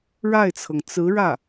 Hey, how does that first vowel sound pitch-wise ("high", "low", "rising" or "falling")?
falling